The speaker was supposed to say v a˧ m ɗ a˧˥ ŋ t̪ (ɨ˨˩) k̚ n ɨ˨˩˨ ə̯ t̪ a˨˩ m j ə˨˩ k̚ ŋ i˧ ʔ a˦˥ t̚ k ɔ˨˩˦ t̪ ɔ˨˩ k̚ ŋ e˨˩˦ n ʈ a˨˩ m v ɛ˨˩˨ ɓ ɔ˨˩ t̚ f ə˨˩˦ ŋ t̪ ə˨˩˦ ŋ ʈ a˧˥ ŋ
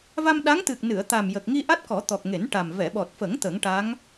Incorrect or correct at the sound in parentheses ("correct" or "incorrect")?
correct